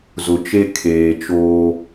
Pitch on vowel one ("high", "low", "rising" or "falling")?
low